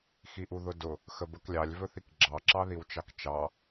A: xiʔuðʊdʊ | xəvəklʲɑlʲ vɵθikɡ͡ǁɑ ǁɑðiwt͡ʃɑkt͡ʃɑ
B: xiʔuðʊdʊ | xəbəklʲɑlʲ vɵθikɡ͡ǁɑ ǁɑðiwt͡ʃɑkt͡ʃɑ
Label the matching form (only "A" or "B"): B